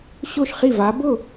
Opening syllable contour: falling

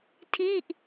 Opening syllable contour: falling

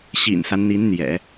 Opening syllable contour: low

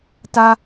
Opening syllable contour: high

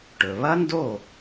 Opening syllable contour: low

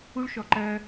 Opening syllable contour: high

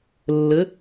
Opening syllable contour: rising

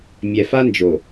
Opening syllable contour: low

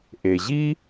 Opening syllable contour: low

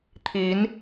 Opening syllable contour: rising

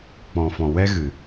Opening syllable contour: low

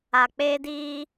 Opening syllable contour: low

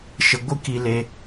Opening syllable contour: low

